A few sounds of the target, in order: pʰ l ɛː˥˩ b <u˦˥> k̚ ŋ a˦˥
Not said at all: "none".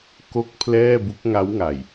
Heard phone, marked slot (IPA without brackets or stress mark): u˦˥